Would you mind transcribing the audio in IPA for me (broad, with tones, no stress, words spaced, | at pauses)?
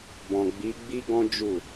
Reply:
bɔ̃˨ɡ͡bi˨˦ɡ͡bi˦ɡɔ̃˦ d͡ʒu˦˨